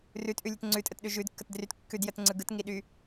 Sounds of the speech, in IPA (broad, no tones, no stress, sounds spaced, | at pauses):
r ʉ t ʔ ʉ lʲ ʉ t ŋ͡ǀ ʉ tʼ ə t ɗ ʉ ʒ ʉ d kː ə t d r y t kː ʉ d j ə t ŋ͡ǀ ɯ ɡ ɯ t ŋ i ɗ y